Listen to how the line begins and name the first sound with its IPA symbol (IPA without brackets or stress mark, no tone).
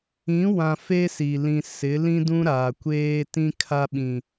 ĩ